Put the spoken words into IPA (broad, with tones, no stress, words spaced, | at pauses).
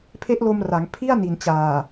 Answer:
pʰe˦˥ʔlo˧mra˩˦ŋ pʰi˥˩a̯ni˨˩nt͡ɕaː˨˩